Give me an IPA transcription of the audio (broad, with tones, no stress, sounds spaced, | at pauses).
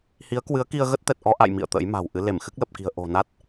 h i˨˦ ə̯ k w ɨ˨˦ ə̯ k i˧ ə̯ ɣ ə˦˥ t̚ t̪ ɛ˨˩ t̚ ʔ ɔ˧ ʔ a̰˧˨ j m ḭ˧˨ ə̯ t̪ ə̰˧˥ j m a̤˨˩ w ʔ ɨ˨˦ l e˧˩ m x ɨ˦˥ k̚ l ə˨˩ p̚ k i̤˨˩ ə̯ ʔ o̤˨˩ n a˦˥ t̚